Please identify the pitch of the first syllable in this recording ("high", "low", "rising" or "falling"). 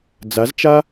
rising